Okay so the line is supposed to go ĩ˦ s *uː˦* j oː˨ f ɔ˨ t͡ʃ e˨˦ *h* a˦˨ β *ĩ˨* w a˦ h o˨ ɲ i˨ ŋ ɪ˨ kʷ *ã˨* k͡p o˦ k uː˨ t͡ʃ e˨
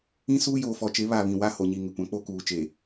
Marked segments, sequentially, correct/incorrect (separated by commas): correct, incorrect, correct, correct